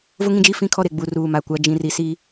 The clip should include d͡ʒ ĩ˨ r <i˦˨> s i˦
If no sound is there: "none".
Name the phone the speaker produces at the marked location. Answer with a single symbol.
i˨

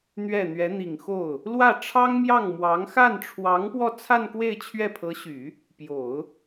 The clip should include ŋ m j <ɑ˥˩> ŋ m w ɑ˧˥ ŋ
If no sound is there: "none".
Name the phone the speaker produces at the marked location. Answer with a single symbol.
ɑ˥˩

